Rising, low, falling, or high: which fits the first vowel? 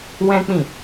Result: high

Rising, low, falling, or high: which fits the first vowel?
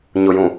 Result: low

